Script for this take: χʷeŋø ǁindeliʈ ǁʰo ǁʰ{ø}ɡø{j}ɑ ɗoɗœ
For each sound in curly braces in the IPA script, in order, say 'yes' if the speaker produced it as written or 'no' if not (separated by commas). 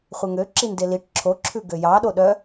no, yes